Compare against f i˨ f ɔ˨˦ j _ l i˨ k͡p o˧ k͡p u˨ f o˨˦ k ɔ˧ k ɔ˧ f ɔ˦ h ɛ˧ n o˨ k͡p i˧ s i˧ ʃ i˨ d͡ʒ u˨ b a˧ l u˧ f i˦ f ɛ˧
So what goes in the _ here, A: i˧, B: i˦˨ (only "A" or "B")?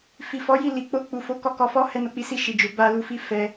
B